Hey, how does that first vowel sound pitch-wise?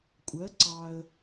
rising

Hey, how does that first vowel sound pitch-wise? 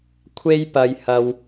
high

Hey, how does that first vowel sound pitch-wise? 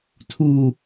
low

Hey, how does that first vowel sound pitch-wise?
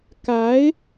rising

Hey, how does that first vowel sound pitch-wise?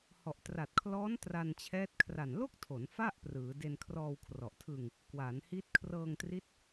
low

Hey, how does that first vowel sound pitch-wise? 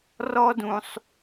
high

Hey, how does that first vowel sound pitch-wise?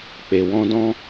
low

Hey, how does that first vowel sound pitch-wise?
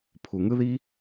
low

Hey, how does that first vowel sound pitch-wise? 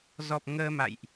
low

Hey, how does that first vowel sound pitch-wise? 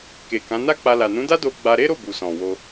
low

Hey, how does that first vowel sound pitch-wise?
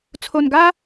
low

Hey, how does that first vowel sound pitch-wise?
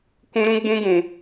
high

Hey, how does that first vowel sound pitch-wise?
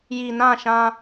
low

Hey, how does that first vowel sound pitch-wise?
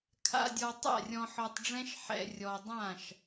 low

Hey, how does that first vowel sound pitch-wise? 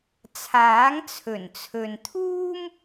rising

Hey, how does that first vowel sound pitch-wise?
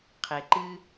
low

